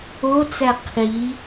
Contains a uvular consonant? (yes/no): yes